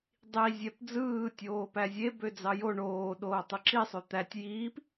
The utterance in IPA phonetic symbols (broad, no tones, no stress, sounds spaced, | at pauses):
dˤ i zʲ æ p d͡z ɯː tʲ oː p æ zʲ e b ø d͡z ɑ j o ɳ oː ɗ oː tˤ ɯ ǁ i sˤ ø t̪ æ tʲ j iː p